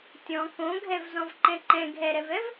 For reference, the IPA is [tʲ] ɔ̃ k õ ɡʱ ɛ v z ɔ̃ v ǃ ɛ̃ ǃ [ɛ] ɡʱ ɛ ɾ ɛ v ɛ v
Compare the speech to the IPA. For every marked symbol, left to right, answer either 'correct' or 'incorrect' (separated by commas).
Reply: correct, incorrect